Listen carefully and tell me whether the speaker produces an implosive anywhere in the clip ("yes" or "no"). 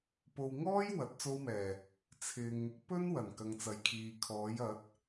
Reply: no